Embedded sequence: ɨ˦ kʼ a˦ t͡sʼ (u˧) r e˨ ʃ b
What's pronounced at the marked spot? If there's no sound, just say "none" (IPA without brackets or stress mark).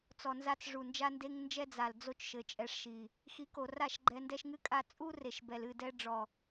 u˦